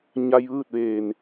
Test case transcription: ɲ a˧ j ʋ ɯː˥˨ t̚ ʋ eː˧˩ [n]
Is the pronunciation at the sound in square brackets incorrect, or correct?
correct